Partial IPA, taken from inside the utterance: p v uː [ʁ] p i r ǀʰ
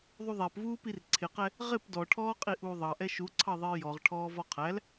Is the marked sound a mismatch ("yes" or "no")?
yes